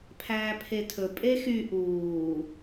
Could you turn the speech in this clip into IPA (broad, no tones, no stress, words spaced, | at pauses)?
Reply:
pʰæːpʰetʰɵ pʼexy ʔuː